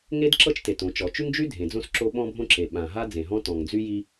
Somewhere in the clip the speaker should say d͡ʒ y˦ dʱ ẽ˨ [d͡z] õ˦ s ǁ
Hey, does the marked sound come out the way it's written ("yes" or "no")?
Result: yes